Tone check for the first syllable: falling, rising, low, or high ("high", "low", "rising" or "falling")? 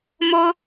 high